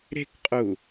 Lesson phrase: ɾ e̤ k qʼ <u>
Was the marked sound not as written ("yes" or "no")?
no